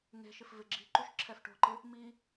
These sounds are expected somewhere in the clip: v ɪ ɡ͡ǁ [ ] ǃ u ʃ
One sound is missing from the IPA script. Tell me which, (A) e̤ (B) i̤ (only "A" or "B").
B